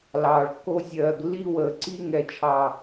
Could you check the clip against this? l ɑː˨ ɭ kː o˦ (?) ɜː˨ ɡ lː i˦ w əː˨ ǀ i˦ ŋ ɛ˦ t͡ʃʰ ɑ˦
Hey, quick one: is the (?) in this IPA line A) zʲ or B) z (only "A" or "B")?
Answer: A